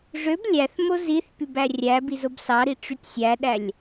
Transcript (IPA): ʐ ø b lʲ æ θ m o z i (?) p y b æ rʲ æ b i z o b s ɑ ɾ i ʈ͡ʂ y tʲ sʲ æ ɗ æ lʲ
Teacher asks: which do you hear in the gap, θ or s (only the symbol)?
θ